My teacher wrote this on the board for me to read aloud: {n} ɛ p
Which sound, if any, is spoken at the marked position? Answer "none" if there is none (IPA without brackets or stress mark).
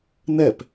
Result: n